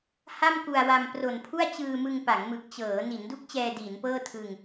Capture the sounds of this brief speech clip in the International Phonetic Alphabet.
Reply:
h a˥˩ m k u˨˩ a̯ w a˧ m p r o˨˩ n pʰ u˥˩ a̯ t͡ɕ ɯː˧ m ɯ˧ ŋ p a˩˦ ŋ m ɯ˨˩ k̚ t͡ɕ ɤː˩˦ n i˩˦ n d u˦˥ k̚ t͡ɕ ɛː˧ d iː˩˦ n p ɤː˥˩ tʰ ɯ˧ ŋ

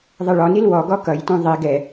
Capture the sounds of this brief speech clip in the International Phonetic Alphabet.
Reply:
ðˤ ʌ ɭ ɔ n i l w ɔ ɡ ɔ k ʌ j t ũ ðˤ i ɡ ɛ

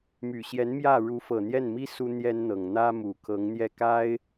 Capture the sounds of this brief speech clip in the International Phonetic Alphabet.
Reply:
m y˨˩ ɕ j ɛ˧˥ n m j ä˥˩ ɻ u˧˥ f ɤ˨˩ n̪ j ɛ˥˩ n m i˥ s u˥ n̪ j ɛ˥ n n̪ ɤ˨˩ ŋ n̪ ä˥ m u˨˩ kʰ ɤ˧˥ ŋ n̪ j ɛ˥˩ k a˥ ɪ̯

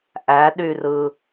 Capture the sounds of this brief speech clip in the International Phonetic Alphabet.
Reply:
ʔ æ ɗ y r ɯ

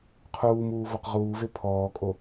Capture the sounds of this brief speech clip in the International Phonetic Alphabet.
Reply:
qʰ uː m uː v ɔ q ʁ uː v e pʰ ɔː kʼ o

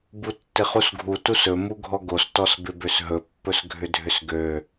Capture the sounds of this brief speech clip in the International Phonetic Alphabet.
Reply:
b u tː ɪ χ u s ɡʱ u t u s ɵ m u ɡʱ ɔ ɡ o s t ɔ s b ɪ b ø s ɦ ɵ pː ɵ s ɡʱ ʏ dʱ ʏ s ɡ ø

